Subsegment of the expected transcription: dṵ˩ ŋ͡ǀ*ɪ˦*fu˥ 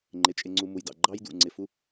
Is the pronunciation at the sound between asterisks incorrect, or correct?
incorrect